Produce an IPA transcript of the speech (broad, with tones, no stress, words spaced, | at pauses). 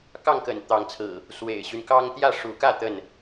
kɑ˥˨ŋkə̰˨˩n t̪ɑ˨˦ŋt͡sʰɹ̩˨˩ | swḛ˨˩ɪ̯ɕy˦n kɑ˦ŋ t̪jä˥˨ʂu˨˦kä˥˨ t̪ə˥˨n